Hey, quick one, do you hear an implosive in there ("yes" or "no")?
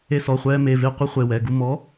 no